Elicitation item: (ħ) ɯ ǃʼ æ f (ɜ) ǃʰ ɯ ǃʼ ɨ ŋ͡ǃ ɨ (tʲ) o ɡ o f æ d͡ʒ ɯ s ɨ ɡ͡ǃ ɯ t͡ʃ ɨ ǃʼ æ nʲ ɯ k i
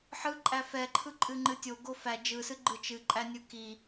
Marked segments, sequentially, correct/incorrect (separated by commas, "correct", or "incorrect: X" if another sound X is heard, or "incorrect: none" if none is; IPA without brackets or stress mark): correct, incorrect: ɛ, correct